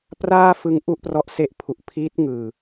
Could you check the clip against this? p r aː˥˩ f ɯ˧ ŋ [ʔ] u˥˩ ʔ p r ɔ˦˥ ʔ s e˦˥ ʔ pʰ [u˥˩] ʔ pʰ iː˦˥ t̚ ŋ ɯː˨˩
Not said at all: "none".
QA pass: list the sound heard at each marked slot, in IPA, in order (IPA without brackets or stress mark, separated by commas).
ʔ, u˨˩